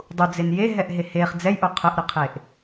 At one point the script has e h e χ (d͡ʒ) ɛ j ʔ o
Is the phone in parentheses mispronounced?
yes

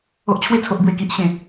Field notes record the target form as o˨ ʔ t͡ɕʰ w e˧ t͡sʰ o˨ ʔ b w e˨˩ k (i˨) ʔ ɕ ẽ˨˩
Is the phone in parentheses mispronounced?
no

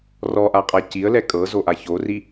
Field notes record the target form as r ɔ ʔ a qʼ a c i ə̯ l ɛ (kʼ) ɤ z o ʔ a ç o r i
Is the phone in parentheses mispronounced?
no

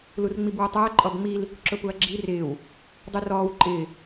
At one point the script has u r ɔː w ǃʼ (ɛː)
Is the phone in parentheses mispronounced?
yes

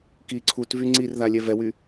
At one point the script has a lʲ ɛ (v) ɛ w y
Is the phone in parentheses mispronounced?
no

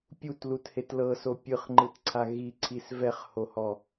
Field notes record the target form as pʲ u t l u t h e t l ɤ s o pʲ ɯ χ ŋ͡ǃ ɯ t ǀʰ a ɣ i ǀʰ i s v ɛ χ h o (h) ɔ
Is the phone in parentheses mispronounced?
no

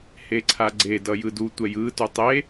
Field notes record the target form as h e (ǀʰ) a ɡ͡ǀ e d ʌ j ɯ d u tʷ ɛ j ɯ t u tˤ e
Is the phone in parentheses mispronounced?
no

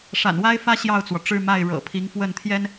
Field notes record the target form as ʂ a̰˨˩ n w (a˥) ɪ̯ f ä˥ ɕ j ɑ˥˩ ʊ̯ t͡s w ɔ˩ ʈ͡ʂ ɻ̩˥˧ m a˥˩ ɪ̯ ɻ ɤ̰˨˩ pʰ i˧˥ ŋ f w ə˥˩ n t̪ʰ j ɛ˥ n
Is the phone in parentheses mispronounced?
no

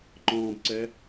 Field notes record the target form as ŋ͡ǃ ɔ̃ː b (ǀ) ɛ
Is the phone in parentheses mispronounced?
no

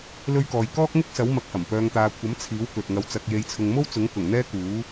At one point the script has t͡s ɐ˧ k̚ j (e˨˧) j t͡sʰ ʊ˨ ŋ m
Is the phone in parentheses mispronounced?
no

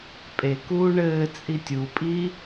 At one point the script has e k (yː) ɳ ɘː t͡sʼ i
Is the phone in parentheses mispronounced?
yes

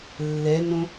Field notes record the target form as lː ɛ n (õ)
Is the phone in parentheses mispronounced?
no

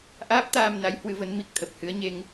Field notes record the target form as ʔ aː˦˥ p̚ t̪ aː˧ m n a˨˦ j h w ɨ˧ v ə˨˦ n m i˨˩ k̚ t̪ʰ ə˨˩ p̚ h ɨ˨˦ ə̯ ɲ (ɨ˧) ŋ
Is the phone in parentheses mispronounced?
yes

